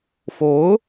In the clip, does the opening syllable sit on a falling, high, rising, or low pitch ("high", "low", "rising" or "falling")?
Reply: rising